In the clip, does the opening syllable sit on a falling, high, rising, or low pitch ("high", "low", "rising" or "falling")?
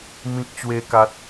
high